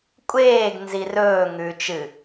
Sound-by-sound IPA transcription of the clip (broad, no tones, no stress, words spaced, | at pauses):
kʷʼeːɡ nzirɵː ŋʉ t͡ʃɨ